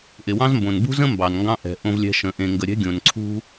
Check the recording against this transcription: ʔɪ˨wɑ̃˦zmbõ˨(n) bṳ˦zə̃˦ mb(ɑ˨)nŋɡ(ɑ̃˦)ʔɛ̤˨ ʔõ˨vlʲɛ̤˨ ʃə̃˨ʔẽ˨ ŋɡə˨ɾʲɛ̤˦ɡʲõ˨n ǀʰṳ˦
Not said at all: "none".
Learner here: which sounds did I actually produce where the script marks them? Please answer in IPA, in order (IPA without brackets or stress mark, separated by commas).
n, ɑ˨, ɑ̃˦